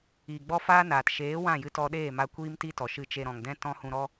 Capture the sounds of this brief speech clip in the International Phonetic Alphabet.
iː˨ ɡ͡b ɔ˦ f aː˦ n aː˨ t ʃ eː˨˦ w ã˦˨ j ɨ˧ t ɔ˧ ɗ eː˦˨ m a˧ kʷ iː˦ m t i˦ t ɔ˨ ʃ ɨ˧ t͡ʃ e˧ ɾ ɔ̃˨ ŋ d ɛ̃˦ t ɔ̃˦ h ũ˧ ɾ ɔ˦

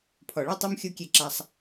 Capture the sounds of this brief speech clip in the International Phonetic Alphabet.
pʰ ɔ˨ ɭ u˦ tˤ o˦ m xʲ o˦ kʲ e˦˨ ǁ a˦ sˤ

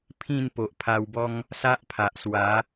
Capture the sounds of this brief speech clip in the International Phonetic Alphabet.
pʰ ĩ˥˧ n p o˨ ʔ pʰ a˧ w b ɔ˦ ŋ | s a˦ ʔ pʰ a˨ ʔ s w a˨˦

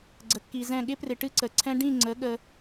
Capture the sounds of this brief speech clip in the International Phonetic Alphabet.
ɡ͡ǀ ə˨ kː i˨ z ɛ̃˦˨ ɠ ɪ˦ p r ɪ˨ ʈ ɨ˦ ǀ ə˨ ǀʰ ɛ̃˦ ɖ ĩ˦˨ ŋ͡ǀ ə˨˦ ɠ ə˦

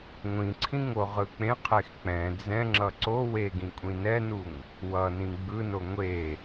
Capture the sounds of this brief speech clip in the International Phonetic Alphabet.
ŋʷ ĩ ǀʰ ĩ ŋ o ʁ ɯ k͡p ẽ qʰ e x k͡p ɛ̃ d͡z ɛ̃ ŋ͡ǁ ʌ ǀ o w e ɡ ĩ kʷʼ ĩ n ɛ n u ŋ | w ʌ n ĩ ɡ͡b ɯ n o ŋʷ e

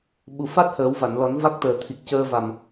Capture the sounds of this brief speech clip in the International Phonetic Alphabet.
ɓ u˨˩ f a˦˥ t̚ h əː˨˩˦ w v a˨˩˨ n l ɔ˨˩˦ n v a˦˥ k̚ t̪ əː˨˩ t̪ʰ i˨˩ k̚ c əː˧ v a˨˩ m

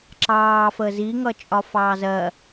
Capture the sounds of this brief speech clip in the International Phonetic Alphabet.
ǁ ɑː f əː z i ŋ ʌ t͡ʃʼ ɒ f ɑː z ɜ

